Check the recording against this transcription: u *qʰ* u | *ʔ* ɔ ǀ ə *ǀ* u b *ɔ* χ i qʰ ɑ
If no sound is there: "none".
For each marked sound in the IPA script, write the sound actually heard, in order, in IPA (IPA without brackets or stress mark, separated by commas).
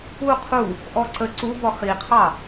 qʰ, ʔ, ǀ, ɔ